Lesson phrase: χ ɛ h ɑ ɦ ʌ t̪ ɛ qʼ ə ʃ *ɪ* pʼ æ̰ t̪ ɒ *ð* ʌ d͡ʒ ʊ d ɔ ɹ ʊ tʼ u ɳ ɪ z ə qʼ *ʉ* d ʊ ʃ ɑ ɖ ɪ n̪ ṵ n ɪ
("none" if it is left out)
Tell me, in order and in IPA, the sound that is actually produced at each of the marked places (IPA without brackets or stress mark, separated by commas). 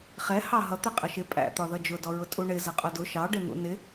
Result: ɪ, ð, ʊ